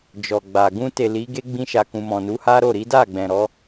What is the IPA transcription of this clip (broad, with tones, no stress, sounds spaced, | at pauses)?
d͡ʒ ɔ˨ ɡ͡b a˨ ɡ ũ˧ t e˨ l i˨˦ ɡ e˦ ɡ͡b ĩ˧ ʃ a˨ k ũ˨ m ɔ̃˨ n u˨˦ h a˦ ɾ o˦˨ ɾ i˨˦ d a˦˨ ɡ͡b ɛ̃˨ ɾ ɔ˨˦